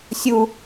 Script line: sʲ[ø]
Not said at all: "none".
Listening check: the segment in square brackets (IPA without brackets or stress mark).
u